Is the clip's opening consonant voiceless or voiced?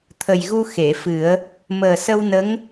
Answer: voiceless